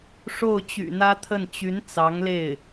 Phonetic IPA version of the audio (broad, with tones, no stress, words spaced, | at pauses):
ʂo˥˩ʊ̯t͡ɕy̰˨˩n̪ä˥t̪ʰə˥˩n t͡ɕy˧˥n t͡sɑ˧˥ŋle˥˩ɪ̯